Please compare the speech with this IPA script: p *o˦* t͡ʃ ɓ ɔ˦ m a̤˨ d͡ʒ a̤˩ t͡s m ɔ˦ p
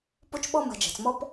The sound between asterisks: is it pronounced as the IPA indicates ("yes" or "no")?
yes